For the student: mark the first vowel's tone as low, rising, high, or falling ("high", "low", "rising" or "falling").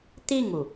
falling